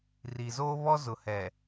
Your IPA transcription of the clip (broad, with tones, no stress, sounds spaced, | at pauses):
r i˨ z oː˦ β ɔ˦ z ʊ˨ h ɛ˨